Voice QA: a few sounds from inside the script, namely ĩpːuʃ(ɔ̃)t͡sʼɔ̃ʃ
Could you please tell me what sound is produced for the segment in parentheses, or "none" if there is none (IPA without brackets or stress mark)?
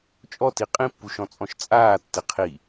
ɔ̃